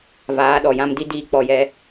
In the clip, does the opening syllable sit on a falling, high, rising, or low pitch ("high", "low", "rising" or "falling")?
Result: rising